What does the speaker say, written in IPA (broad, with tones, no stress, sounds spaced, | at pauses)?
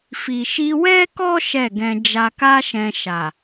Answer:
f i˨ ʃ i˧ w ɛ˦ k ɔ˦ ʃ ɛ˦˨ ɡ ɛ̃˧ d͡ʒ a˧ k a˦ ʃ ɛ̃˧ ʃ a˨